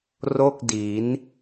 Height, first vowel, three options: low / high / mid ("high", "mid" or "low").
mid